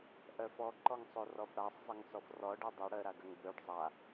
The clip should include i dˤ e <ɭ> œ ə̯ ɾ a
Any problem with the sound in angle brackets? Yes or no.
yes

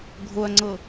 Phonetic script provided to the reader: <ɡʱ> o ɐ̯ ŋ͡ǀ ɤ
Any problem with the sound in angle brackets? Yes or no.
no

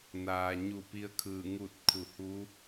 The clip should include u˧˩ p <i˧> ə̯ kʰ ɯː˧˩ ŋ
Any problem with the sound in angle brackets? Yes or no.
no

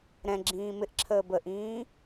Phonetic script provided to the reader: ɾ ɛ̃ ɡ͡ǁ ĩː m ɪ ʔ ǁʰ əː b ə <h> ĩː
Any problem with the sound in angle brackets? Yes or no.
yes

